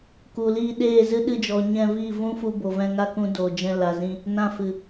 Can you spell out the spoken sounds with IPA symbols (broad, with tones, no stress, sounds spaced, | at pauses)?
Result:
k u˨ l iː˧ ɗ eː˦˨ z ɨ˦ ɗ ɨ˧ d͡ʒ ɔ˨ ɲ ɛ̃˧ v iː˦˨ v ũ˦ f u˧ b o˨ v ɛ̃˧ ŋ a˦ k ũ˧ d oː˨ d͡ʒ ɛ̃˧ l a˨ z ĩ˧ | n ã˧ f ɨ˨